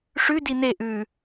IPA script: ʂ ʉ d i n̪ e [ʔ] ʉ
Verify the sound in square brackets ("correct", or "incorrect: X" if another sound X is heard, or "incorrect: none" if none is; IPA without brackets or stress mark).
correct